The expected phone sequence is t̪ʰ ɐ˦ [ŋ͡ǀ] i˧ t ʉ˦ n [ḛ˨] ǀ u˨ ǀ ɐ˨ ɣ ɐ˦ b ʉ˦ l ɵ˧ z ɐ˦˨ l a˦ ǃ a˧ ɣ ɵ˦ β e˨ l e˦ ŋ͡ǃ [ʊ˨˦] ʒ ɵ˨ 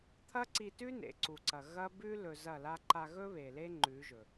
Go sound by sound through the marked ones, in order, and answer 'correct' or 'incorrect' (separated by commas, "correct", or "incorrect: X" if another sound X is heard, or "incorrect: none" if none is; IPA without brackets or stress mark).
incorrect: ǀ, correct, incorrect: ʉ˨˦